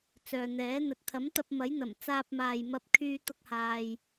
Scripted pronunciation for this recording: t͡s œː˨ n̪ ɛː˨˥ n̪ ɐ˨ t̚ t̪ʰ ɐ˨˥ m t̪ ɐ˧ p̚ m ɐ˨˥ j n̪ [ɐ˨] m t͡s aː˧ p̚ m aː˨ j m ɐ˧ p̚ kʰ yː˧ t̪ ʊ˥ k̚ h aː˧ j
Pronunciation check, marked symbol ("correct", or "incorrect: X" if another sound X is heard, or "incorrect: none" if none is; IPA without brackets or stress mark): incorrect: ɐ˨˩